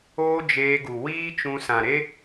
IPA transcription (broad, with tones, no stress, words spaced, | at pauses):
oː˦ d͡ʒeː˧ɡu˨ wiː˦t͡ʃũ˧ sã˨ɾe˦